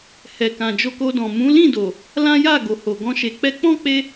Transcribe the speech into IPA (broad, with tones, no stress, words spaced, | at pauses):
hɛ˨ kã˨d͡ʒo˧ko˧dɔ̃˨ mũ˨˦lĩ˦˨do˨ | lã˦ja˦˨ɡo˨ ho˨ɡɔ̃˧ ʃe˨k͡pɛ˧k͡pɔ̃˦k͡pe˧